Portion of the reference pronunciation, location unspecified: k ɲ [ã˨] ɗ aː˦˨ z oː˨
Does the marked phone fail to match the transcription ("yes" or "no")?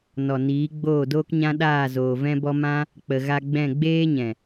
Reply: yes